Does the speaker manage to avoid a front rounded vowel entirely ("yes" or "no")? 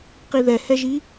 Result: yes